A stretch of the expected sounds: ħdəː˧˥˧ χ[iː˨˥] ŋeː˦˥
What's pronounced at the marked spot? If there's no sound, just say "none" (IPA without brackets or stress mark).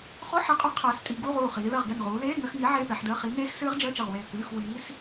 i˨˥